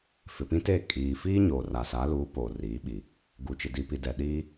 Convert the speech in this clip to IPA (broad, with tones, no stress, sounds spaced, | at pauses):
f ɪ˨ p ĩ˦ t eː˦˨ kʼ iː˨ f iː˦ ɲ oː˨ r a˨ s a˨˦ l uː˨˦ p oː˨ r iː˨˦ ɓ i˨ | ɡ u˨ t͡ʃ ɪ˨ d i˨ p i˨ d ɛ˨ ɗ iː˦